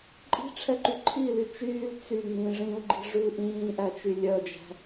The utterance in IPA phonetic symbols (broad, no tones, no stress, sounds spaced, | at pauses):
ǃʼ i̤ ʈ͡ʂʰ ɛ ǃ y ǃʰ i l y t͡ʃ yː l t͡s y ŋ͡m ĩ ʐ ĩ u̯ ɡ͡ǃ i̤ ʐ ʉ l ʔ ĩː ʔ æ t͡ʃ y lʲ œ d͡ʒ æ̤